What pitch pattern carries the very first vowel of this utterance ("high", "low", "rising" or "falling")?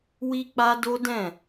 high